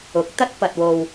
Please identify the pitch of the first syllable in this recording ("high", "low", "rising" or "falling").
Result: rising